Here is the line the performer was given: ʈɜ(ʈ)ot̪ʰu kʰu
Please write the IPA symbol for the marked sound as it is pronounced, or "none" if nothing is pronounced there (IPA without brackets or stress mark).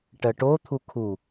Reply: ʈ